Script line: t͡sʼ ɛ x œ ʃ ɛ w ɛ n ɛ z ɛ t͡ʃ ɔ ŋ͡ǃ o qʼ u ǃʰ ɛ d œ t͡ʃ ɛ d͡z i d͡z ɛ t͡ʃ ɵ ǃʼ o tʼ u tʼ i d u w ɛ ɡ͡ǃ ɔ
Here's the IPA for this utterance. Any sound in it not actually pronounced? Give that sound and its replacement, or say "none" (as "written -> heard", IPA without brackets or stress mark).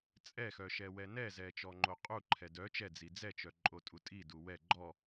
ɵ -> œ